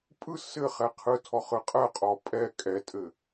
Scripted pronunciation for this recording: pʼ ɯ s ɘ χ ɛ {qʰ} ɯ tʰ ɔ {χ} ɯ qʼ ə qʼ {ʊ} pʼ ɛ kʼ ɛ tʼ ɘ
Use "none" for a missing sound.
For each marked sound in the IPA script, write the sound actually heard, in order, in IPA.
qʰ, χ, ɔ

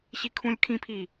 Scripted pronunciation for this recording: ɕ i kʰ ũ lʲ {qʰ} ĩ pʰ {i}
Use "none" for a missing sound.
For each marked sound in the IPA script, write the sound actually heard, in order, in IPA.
kʰ, i

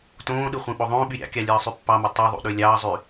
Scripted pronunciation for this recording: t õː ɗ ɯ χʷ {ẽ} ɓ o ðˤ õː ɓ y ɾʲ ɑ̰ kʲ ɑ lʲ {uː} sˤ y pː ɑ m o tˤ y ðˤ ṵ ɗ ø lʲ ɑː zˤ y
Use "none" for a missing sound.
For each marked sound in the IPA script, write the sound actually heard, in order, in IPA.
ẽ, ɯː

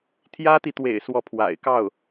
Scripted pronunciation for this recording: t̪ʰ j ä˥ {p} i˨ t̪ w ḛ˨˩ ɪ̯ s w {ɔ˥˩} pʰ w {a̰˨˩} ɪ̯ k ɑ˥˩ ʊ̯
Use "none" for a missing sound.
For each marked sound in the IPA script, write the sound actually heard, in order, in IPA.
t̪, ɔ˥˩, a̰˨˩

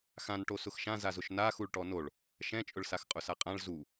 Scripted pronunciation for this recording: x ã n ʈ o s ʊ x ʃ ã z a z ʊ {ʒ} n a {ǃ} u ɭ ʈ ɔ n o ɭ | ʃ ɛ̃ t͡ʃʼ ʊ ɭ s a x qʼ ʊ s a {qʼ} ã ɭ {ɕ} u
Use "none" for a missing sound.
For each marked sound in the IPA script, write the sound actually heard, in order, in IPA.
ʃ, x, qʼ, z

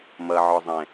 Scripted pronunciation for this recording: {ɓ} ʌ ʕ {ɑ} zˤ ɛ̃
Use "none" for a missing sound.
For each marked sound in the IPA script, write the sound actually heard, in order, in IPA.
m, ɔ

